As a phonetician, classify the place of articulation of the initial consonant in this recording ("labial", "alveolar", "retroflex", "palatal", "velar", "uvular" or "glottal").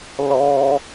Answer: alveolar